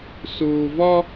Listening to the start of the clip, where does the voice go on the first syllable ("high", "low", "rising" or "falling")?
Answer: low